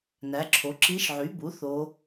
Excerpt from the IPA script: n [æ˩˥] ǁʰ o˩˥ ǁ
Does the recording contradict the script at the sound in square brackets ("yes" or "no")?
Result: no